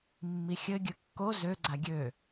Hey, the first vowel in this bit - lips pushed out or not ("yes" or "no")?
no